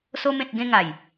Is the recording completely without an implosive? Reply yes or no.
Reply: yes